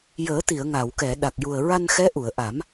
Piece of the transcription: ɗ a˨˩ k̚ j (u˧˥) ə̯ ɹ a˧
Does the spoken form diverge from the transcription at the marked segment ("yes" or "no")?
yes